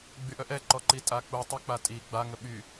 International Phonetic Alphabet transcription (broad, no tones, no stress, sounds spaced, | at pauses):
ɡ͡b y ʔ œ ʔ ɛ ǃ ɔ ǃ i tʼ a k͡p u tˤ œ k͡p a tʼ i ɡ͡b a ŋ ə ɓ y